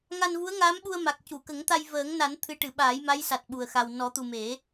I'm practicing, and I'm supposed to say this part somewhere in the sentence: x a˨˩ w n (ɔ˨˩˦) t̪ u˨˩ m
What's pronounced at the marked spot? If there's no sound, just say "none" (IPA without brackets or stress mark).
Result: ɔ˨˩˦